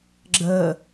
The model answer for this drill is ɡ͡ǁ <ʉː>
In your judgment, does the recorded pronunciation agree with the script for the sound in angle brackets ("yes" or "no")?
no